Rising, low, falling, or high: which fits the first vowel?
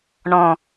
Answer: low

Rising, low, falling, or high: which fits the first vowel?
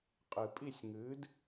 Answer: low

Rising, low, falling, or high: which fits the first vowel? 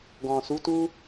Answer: low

